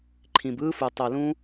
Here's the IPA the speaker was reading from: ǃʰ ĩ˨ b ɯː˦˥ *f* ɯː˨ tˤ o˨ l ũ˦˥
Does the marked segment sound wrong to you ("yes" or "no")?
no